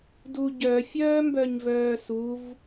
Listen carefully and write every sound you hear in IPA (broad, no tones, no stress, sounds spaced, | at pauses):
d u ɟ œ fʲ œː m b œ ɲ v œː s u v